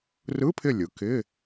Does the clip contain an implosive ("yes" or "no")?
no